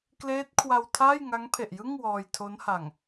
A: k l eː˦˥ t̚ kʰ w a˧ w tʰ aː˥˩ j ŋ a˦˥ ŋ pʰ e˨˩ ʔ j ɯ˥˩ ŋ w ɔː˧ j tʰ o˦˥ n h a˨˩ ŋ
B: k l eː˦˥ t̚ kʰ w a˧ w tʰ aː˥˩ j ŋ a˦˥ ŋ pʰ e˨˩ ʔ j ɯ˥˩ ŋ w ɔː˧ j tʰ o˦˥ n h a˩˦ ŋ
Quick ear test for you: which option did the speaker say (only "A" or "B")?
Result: A